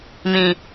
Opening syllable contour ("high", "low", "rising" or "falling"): low